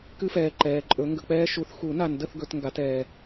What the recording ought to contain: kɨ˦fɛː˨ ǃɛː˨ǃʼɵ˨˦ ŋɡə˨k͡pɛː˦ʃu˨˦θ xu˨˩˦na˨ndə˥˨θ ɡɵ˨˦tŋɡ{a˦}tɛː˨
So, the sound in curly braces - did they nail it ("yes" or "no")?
no